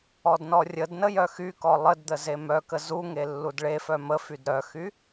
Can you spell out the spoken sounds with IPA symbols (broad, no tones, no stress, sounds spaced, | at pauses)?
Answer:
ɔ d n ɔ rʲ ə d n ə j œ x y k ɔ lˠ ə d d̪ ə z e m œ k ə z u ŋ e lː u d ɭ e f œ m ə f y d ɾ œ x y